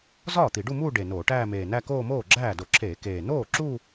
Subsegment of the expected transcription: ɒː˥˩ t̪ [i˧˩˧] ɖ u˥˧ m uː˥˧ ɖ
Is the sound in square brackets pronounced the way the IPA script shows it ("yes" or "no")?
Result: yes